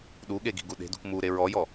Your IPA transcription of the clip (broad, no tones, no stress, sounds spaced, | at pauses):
ɗ u ɠ e ɡ i̤ ɡ u ɗ e̤ d ṳ k m u ɾ e ɹ ɔ j ɔ